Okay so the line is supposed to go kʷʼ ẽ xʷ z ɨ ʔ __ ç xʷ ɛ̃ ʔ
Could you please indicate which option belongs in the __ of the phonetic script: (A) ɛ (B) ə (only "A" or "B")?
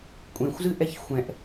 A